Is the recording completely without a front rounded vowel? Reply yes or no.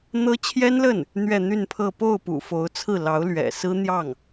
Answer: no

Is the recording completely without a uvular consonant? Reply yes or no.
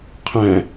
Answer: no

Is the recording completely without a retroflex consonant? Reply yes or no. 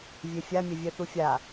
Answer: yes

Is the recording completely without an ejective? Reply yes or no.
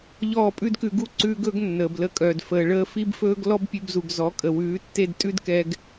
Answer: no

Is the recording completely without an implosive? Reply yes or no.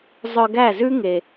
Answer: yes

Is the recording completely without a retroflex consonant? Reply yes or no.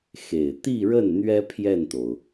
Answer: no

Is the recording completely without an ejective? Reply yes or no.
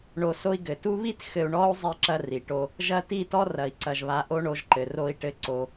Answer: yes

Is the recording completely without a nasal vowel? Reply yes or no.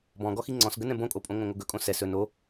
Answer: no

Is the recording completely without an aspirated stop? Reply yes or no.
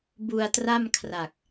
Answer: no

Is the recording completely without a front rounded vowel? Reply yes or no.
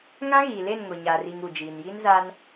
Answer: yes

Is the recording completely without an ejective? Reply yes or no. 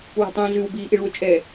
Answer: no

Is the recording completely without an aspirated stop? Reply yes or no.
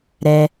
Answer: yes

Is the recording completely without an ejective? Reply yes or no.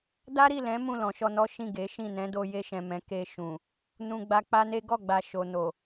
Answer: yes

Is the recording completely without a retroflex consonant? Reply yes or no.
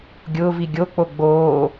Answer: yes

